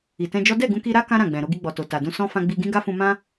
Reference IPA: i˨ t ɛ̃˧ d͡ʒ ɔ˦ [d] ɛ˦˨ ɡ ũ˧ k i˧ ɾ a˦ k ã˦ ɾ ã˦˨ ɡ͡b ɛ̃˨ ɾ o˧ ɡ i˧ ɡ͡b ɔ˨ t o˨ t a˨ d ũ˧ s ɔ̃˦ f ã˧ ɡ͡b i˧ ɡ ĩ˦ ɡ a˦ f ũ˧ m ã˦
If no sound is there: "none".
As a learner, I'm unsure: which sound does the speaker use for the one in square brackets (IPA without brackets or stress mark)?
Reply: d